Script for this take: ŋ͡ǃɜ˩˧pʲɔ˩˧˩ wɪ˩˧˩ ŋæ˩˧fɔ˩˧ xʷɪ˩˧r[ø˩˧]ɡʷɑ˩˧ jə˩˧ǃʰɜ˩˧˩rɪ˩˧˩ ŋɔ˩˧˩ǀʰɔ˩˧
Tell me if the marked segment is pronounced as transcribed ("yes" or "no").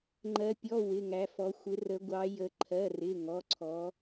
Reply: no